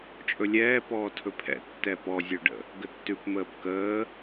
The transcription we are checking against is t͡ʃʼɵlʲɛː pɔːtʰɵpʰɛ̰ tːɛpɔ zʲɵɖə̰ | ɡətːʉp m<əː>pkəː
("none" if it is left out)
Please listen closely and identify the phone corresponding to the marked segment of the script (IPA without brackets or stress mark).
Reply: əː